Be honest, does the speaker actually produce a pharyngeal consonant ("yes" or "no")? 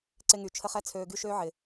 yes